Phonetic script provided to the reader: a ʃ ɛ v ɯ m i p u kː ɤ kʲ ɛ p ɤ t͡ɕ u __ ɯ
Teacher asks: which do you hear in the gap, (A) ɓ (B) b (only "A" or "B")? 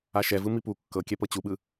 A